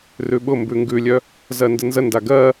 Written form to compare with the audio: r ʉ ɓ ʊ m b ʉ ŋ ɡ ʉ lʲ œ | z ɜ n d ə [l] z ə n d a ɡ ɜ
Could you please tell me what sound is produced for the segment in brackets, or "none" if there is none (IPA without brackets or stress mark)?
n